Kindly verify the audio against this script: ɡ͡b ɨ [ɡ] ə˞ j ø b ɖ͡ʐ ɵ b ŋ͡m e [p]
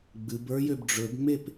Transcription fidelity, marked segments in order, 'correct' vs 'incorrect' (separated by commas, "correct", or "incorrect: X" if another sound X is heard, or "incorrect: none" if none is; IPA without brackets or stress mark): incorrect: b, correct